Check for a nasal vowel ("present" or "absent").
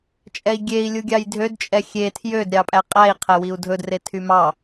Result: absent